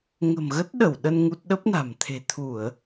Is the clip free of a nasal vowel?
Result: yes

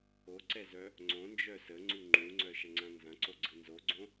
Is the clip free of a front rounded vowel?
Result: no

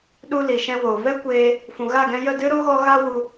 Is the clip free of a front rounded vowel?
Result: yes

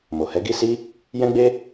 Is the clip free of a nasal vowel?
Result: no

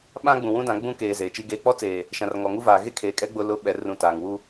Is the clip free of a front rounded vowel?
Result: yes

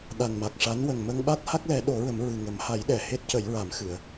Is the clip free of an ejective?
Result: yes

